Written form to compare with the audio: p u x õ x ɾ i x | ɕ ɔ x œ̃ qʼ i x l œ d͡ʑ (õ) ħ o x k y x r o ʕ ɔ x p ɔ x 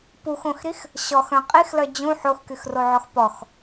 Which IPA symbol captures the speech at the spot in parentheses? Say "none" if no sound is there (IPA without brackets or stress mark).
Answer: ũ